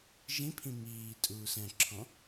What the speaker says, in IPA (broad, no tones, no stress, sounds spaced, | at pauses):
ʒ ĩ pʰ ĩ m iː tʼ uː s ɛ̃ ǁʰ ɔ̃